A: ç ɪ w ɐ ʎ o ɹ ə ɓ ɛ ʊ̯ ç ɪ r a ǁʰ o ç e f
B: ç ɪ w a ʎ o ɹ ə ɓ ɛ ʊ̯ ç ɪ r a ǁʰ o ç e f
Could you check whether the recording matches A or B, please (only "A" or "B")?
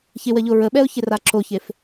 A